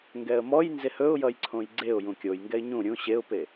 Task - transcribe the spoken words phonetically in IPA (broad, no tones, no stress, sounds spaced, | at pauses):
ŋ ɡ ɛ ə̯ m ɔ j n z e h ɵ ʊ̯ j ʌ j ǀʰ õ j ɡ͡ǀ e ʊ̯ j ũ kʲ o j ŋ ɡ ɛ ɪ̯ ɲ ũ ɾʲ ũ ɕ e ʊ̯ p e